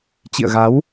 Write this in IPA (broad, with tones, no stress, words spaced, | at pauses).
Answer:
t͡ɕḭ˧˨ə̯ɣa˨˦w